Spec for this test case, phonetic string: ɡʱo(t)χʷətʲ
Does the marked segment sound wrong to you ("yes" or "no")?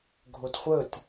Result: no